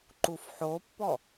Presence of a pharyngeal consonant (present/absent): present